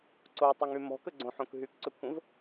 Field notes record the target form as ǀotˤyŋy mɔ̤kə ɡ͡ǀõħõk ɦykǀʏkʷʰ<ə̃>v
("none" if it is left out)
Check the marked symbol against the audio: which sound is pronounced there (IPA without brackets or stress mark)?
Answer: ə̃